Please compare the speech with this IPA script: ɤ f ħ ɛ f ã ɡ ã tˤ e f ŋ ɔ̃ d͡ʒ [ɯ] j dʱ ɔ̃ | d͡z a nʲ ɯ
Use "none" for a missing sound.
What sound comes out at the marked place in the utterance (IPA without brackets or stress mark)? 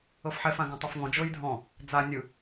ɤ